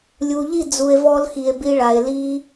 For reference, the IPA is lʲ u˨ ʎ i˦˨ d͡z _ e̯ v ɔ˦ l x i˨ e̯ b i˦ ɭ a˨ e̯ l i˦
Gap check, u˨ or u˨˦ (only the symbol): u˨